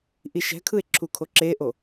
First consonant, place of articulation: glottal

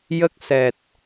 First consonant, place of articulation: palatal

